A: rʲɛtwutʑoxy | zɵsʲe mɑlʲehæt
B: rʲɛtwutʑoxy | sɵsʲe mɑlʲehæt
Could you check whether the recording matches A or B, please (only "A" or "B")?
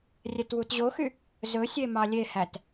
A